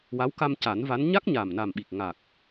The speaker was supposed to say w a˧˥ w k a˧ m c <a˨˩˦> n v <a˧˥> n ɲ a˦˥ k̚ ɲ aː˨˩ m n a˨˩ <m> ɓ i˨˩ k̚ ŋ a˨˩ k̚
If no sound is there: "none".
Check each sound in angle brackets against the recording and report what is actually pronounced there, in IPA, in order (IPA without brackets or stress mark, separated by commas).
a˨˩˦, a˧˥, m